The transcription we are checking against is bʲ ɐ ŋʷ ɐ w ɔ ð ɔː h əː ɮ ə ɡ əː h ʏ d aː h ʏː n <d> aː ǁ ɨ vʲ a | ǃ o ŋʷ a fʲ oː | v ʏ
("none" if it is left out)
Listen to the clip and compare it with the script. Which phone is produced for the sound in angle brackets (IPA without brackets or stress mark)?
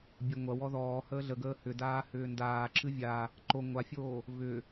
d